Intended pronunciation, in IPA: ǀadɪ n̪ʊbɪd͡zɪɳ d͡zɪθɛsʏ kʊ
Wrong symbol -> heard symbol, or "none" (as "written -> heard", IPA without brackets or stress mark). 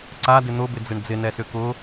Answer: θ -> n